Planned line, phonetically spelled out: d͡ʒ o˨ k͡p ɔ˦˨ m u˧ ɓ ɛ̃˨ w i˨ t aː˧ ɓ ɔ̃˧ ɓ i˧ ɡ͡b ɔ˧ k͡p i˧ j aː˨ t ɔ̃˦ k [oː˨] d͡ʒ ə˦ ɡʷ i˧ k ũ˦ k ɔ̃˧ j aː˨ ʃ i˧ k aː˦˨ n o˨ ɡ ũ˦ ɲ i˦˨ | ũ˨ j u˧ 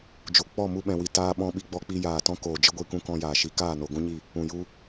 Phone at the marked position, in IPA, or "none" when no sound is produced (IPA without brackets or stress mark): oː˨